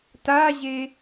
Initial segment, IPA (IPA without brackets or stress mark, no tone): t